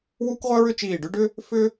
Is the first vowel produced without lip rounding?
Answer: no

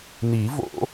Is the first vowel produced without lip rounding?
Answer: yes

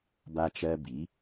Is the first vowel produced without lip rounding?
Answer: yes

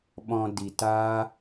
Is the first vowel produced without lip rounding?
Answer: no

